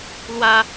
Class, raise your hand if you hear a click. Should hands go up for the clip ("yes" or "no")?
no